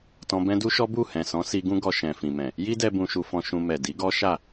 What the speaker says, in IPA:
t ɔ̃˧ b ɛ̃˦ d u˦ ʃ ɔ˦ b u˦˨ h ɛ̃˨ s ɔ̃˨˦ s i˧ ɡ ũ˦ ɡ ɔ˧ ʃ ɛ̃˨ f ĩ˨ m ɛ̃˨ | j i˦ d ɛ˧ b ũ˧ ʃ u˧ f ɔ̃˧ ʃ ũ˧ m ɛ˨ d i˨˦ ɡ ɔ˦ ʃ a˦˨

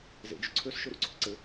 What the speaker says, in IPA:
z ḛ d͡ʒ ʏ ǀʰ ø s ʃ ø ɾ ṵ ǀʰ ʏ ǀ ɘ

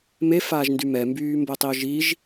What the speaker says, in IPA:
m e f aː ʒ n d y m ɛ m b yː m b o tˤ i ʊ̯ ʒ i ʒ

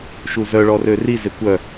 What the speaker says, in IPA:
ʃ u z œ ɭ ɔ r ø r i z e kʷ œ

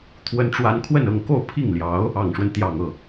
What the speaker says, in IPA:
t̪ʰ w ə˥ n ʈ͡ʂ w a˥ n kʰ w ə˥˧ n ɤ˥˧ ŋ k o˥˧ ʊ̯ pʰ i˥˩ ŋ l j ɑ˧˥ ʊ̯ | ɑ˨˩ ŋ ʂ w ə˦ n t̪ j ɑ˨˩ ŋ ɤ˥˩

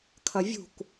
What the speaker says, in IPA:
kʰ ɐ vʲ ṳ k

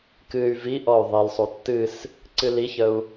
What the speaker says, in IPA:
k ɨ y̯ v i ʔ ɔ y̯ ðˤ i l sˤ u tː ɨ s | ǀ ɨ l i ç ə u̯

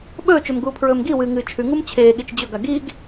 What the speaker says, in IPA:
ɓ ɵː t͡ʃ ɵ m ɡ uː pʰ ɹ ɵː m ɡ i w ɨː ŋ ɨː t͡ʃʰ ʉ ŋ u m t͡ɕʰ eː ɠ i t͡ʃ d͡ʑ ɵ ɡ a ɡ i ɡ

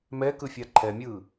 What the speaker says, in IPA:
m ɛ k ɯ fʲ a ǃʰ ɛ mʲ ɯː

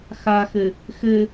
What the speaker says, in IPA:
x a x ɘ | x ɘ

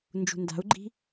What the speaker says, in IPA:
n d͡ʒ ṳ n d a̤ u̯ ɡ͡ǃ i̤

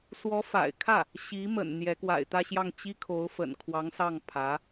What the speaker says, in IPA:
s w ɔ˧˥ f a̰˨˩ ɪ̯ kʰ ä˥˩ | ɕ i˧˥ m ə̰˨˩ n n̪ j ɛ˧˥ k w a̰˨˩ ɪ̯ t̪ ä˥˧ ɕ j ɑ˥˩ ŋ t͡ɕ i˥ kʰ o˧˥ ʊ̯ f ə̰˨˩ n kʰ w ɑ˧˥ ŋ s ɑ˥˩ ŋ pʰ ä˧˥

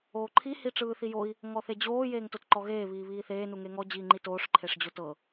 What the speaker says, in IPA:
oː ǃʰ i h i ʈ͡ʂ ɯː θ i j o i̯ | ŋ ɔ θ e d͡ʑ oː j eː ŋ t o t ǃ ɔ ɣ eː β iː β iː θ eː n u ŋ e ŋ ɔ d͡ʑ iː ŋ͡ǃ i t oː ʂ ǃʰ e ʂ d͡ʑ o t ɤ

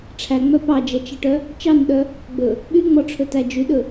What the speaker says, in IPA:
ʈ͡ʂʰ æ ŋ͡m œ p ɑ d͡ʒ ɛ t͡ʃ ɛ ʈ œ | t͡ʃ ɑ n ɗ œ | ɡ͡b ɵ | ɓ y ŋ͡m ɔ ʈ͡ʂʰ ɵ t æ d͡ʒ y ɗ ɵ

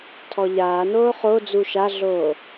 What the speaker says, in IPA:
tʰ ɔ ʎ aː n oː χ o d͡z u ʃ a ɮ oː

